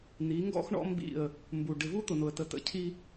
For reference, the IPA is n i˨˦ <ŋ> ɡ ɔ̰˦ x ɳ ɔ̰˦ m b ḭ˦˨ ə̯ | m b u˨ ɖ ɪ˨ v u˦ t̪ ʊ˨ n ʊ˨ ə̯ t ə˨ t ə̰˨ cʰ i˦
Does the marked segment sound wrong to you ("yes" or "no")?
no